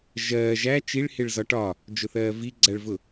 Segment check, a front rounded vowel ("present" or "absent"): absent